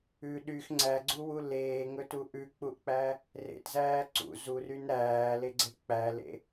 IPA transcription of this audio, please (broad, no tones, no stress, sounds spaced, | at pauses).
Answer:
ʉ ɗ y x ŋ͡ǀ æ ɡ͡ǀ u w u l eː ŋ ɵ t u ʔ ʉ k͡p u ʔ k͡p æ | r ḛ t z æː ǀ ṵ z u r y n ɾ æː l e ɡ͡ǀ e k͡p æ l ḛ